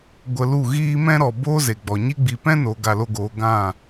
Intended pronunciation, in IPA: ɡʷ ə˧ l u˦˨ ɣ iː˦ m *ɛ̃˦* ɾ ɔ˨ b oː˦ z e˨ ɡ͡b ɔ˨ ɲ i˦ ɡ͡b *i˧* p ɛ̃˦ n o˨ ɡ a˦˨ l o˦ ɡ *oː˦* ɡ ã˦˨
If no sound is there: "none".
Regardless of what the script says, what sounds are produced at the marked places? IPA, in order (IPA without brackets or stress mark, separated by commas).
ɛ̃˦, i˧, oː˨˦